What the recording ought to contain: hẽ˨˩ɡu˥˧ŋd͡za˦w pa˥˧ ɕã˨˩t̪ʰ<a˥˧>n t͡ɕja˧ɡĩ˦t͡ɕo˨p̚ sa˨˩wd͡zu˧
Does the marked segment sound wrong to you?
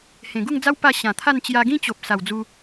no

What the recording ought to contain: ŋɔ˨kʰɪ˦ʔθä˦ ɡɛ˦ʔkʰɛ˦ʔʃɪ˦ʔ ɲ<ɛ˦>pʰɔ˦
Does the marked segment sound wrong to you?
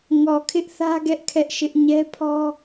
no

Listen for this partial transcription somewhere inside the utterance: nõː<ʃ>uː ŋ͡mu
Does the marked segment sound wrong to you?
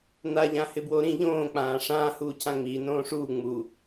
yes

